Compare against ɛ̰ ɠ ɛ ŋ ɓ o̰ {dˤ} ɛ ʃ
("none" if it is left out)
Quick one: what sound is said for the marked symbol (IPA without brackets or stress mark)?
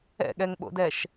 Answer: d